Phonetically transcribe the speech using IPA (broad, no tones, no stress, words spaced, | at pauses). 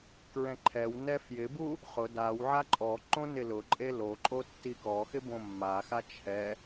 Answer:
kɹɛ̃ǃʰɛwnɛ fjɪbu | χʊ daw ʕaǃʼɔǃõ nɪlʊǃʼe loǃʼo tːikɔxɪ bõmːaxa t͡ʃʰɛ